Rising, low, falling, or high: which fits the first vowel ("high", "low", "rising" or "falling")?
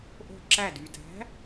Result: falling